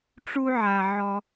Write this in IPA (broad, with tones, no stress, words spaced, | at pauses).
ʈ͡ʂu˥ʕa˧ ʕɔ˧